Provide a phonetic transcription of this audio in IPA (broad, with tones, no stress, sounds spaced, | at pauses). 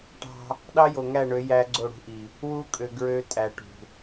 ʈ ɑ̤˦ | ɗ ɑ˦ j o˨ ŋ æ˦˨ ɳ ø˨˦ j æ˦ ɡ͡ǀ o˦˨ ɽ ṳ˦ ʔ i˨ | w u˦ kʼ ø˨ ɡ ɹ ø˦ tʼ æ˨ ʈ ṳ˨